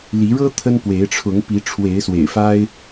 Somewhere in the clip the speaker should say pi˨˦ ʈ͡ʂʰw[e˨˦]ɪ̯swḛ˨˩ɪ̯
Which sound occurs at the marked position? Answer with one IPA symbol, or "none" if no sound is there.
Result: e˨˦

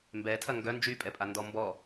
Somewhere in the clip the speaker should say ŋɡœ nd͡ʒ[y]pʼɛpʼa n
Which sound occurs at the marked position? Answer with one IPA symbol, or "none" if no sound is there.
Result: y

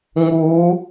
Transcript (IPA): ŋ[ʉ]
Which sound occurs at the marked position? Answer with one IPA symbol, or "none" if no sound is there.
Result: u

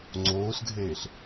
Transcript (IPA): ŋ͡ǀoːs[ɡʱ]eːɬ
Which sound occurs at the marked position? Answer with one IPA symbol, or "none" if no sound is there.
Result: ɡʱ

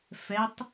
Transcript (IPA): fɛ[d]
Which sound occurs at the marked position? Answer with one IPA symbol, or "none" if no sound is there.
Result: tˤ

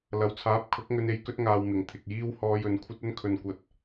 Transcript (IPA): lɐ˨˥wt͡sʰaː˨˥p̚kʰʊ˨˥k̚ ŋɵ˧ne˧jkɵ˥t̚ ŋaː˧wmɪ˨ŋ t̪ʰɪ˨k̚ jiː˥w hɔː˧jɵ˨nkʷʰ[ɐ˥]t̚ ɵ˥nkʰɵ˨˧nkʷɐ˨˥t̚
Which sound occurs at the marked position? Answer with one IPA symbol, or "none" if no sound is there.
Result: ɐ˥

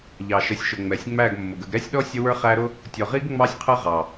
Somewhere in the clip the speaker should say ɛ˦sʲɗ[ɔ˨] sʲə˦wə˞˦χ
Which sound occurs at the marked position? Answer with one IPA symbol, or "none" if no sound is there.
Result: ɔ˦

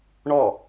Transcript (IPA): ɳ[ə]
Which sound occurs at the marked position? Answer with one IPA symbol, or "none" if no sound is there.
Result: ɔ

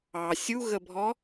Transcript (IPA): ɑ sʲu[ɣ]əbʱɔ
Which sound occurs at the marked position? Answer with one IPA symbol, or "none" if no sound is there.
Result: ɣ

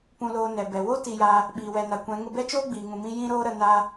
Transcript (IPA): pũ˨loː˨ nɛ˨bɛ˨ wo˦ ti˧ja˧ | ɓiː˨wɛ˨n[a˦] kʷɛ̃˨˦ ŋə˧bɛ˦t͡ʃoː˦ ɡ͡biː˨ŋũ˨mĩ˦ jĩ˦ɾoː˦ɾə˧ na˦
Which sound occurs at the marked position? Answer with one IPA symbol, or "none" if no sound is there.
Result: a˨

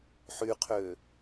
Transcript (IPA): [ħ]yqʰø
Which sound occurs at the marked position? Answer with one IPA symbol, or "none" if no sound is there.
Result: ħ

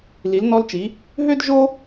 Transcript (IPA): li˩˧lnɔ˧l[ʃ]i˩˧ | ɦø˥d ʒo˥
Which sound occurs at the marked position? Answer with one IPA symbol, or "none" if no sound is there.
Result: t͡ʃ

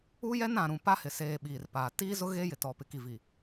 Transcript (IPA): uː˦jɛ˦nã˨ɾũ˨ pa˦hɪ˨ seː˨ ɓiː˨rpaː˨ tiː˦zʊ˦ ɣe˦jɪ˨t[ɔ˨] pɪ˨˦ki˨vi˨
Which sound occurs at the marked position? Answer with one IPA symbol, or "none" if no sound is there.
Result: ɔ˨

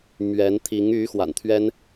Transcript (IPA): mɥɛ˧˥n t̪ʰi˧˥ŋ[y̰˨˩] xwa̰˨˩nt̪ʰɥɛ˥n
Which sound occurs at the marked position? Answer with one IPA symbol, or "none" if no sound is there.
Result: y˧˥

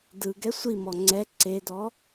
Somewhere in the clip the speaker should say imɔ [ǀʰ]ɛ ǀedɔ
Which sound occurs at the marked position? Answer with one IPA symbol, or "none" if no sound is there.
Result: ŋ͡ǀ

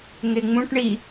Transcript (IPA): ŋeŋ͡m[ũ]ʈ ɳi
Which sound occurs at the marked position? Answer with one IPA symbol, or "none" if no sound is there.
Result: ũ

